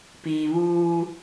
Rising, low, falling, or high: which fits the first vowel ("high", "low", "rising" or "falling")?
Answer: low